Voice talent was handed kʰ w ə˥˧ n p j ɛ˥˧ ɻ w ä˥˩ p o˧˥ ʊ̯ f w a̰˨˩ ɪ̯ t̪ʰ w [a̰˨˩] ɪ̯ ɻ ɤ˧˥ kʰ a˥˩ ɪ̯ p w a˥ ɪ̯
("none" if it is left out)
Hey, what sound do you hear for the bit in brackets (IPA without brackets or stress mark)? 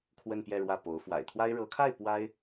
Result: a˥